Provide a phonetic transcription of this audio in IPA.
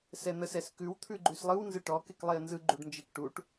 s ɛ n̪ ə s ɛ s k ʉ w t̪ʰ ʉ ɡ͡ǃ ʉ s lˠ ɯ w n z ɨ ʈ ɔ k e k lˠ e ə̯ n z ɯ ɡ͡ǃ u ɖ n d͡ʒ e k ʈ u ʈ

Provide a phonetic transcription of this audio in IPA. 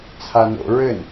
t͡sʰ a n o̰ ɹ ɘ n

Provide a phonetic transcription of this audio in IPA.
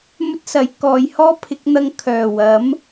m ɵ˥ t̚ s ɐ˨˥ j k ɔː˨˧ j h ɔː˥ pʰ ɪ˨˥ k̚ n̪ ɐ˧ ŋ kʰ œː˨˩ w ɐ˨˥ m

